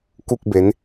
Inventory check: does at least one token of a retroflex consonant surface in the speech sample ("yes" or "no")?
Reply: no